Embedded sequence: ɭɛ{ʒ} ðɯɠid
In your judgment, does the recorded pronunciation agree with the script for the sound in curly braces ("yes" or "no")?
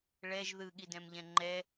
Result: yes